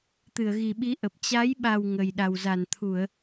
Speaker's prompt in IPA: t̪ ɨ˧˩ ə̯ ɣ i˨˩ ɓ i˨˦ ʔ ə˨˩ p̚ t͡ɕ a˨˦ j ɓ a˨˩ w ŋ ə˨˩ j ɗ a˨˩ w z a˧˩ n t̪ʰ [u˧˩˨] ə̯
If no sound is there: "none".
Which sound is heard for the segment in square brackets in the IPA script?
u˧˩˨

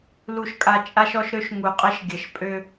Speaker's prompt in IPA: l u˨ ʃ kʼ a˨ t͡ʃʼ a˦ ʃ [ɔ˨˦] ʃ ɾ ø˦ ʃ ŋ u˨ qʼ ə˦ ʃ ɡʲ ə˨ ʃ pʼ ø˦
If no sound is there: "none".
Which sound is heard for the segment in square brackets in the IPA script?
ɔ˦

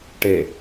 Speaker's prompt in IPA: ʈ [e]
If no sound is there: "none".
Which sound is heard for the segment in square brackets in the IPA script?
e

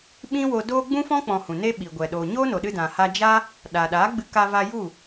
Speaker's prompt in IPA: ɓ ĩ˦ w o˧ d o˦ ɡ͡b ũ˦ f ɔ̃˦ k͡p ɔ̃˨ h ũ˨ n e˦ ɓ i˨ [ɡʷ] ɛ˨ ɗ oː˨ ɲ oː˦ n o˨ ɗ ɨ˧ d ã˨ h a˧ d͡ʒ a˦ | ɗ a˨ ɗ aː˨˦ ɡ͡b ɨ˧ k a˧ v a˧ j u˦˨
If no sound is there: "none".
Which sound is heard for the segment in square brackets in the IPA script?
ɡʷ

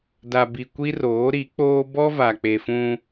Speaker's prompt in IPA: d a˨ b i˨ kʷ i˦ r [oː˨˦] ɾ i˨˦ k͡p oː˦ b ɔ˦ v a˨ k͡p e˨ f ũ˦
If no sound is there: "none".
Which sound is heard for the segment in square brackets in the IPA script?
oː˨˦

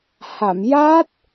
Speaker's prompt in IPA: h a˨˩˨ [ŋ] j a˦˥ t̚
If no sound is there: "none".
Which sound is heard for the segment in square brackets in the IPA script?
m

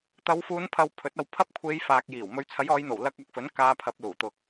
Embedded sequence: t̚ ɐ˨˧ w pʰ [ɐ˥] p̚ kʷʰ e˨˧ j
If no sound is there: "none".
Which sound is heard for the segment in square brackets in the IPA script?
ɐ˥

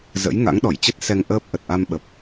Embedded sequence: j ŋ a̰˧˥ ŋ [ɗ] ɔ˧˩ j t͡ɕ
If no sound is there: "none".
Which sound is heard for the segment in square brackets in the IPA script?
ɗ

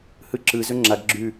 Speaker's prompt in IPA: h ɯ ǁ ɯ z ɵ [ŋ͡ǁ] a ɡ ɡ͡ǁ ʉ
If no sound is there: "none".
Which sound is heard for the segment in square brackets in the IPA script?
ŋ͡ǁ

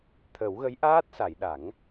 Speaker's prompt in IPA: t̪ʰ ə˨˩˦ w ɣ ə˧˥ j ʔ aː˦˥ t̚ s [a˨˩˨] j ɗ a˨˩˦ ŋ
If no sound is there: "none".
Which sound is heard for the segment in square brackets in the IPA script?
a˨˩˨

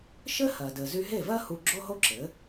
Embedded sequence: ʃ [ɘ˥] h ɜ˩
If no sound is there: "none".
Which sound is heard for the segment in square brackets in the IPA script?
ɘ˥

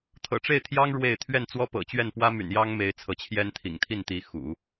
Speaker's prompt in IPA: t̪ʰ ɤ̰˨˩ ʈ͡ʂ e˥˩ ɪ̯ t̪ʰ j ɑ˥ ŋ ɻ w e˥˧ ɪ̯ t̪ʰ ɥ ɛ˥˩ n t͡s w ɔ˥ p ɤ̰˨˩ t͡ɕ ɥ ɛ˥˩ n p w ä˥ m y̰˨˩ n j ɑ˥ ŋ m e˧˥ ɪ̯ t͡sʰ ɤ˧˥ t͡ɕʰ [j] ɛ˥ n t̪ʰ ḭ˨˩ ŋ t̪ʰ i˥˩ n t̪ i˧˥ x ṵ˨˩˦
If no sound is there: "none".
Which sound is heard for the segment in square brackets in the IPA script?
j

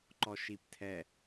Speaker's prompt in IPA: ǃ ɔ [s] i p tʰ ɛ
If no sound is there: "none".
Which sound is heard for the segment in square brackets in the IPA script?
ʃ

